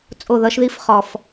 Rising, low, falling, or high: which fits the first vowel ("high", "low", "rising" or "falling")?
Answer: falling